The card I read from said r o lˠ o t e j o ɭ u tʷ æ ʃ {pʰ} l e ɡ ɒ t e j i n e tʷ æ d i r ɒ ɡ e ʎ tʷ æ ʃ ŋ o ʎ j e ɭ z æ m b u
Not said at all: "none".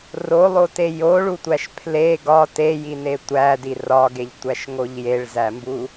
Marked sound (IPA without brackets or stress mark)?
pʰ